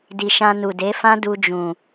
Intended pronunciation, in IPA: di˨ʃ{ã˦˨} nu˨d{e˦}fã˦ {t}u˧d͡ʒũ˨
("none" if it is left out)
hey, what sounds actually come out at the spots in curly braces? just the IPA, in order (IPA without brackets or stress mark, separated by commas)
ã˧, e˨˦, d